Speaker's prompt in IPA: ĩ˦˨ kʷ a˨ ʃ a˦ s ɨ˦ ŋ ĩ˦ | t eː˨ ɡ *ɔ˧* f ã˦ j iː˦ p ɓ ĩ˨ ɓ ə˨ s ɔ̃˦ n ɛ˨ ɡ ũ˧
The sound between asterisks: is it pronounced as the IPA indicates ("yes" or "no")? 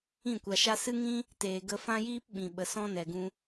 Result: no